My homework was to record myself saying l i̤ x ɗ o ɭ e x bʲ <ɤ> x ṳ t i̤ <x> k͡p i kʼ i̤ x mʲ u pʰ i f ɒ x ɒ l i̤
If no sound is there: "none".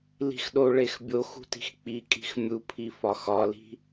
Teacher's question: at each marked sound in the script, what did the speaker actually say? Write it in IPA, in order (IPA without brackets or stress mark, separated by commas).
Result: o, x